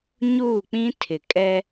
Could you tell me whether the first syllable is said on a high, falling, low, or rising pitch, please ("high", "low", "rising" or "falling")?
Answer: falling